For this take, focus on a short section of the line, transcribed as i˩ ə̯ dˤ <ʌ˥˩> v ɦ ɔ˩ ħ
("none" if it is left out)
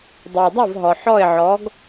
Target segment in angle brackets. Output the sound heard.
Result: a˥˩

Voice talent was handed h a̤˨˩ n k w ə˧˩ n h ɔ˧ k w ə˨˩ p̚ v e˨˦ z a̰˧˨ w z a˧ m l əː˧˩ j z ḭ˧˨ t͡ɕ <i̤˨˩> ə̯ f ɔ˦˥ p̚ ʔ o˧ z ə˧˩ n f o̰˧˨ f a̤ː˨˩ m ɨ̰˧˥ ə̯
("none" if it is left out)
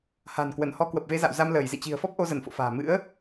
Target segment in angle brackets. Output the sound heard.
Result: i̤˨˩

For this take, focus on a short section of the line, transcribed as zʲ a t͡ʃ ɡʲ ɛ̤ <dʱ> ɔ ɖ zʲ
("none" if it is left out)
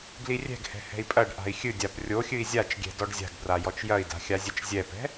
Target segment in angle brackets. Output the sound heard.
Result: d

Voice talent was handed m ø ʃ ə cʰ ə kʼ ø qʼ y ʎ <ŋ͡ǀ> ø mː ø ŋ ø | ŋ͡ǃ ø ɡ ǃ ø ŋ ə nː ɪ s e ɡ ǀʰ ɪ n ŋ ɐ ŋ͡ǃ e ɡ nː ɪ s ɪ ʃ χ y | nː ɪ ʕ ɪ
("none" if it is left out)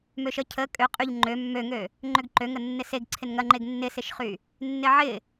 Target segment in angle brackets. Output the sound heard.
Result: ŋ͡ǃ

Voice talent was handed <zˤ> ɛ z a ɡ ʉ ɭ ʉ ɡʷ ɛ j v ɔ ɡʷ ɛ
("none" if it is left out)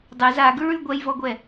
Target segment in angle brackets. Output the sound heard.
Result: dˤ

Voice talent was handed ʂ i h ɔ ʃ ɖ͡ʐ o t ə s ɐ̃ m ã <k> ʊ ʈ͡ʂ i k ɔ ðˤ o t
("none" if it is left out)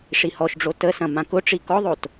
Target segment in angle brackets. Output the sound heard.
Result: k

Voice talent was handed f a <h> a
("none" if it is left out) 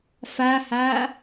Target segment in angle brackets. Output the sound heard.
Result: h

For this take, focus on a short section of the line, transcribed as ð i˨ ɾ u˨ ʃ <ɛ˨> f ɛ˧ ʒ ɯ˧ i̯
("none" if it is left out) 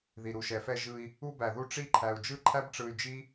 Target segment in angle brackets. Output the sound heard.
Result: ɛ˨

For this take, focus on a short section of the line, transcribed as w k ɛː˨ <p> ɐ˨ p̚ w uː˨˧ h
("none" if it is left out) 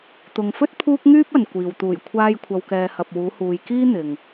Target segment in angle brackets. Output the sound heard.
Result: h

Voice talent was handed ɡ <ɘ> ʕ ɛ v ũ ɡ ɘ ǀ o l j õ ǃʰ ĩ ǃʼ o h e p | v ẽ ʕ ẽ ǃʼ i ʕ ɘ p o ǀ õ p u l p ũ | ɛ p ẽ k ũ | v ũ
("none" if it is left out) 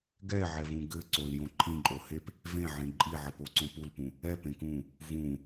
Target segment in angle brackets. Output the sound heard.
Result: ɛ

